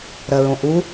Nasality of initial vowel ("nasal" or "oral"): oral